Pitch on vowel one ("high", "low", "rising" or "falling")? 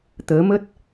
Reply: rising